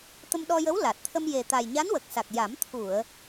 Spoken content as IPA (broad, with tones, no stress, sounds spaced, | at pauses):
t̪ ə˧ m ɗ ɔ˧ j ə˧˥ w l a˨˩ t̚ t̪ʰ ə˧ m j e˨˩ t̪ a˨˩ j ɲ a˧˥ n w ə˨˩ k̚ s a˨˩ k̚ j a˨˩˦ m t̪ʰ u˨˩˨ ə̯